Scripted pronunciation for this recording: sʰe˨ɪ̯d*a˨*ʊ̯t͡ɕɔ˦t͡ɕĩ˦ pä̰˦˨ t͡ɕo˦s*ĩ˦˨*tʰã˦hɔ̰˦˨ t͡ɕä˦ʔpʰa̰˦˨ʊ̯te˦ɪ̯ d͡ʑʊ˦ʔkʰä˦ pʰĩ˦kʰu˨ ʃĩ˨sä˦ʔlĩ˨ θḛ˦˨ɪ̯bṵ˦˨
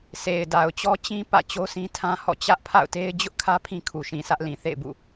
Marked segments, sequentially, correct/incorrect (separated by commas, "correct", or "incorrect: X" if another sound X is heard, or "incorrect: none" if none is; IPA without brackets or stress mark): correct, incorrect: ĩ˦